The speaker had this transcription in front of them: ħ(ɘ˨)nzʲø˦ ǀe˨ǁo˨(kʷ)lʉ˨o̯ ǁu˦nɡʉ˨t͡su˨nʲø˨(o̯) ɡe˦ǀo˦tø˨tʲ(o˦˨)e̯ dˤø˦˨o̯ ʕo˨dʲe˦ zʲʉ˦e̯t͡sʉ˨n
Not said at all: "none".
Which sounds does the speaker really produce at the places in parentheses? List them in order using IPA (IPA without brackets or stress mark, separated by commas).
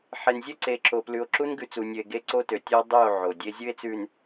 e˨, p, e̯, o˦